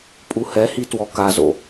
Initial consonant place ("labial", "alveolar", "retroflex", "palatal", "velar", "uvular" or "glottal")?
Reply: labial